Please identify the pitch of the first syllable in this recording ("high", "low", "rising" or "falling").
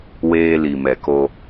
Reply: high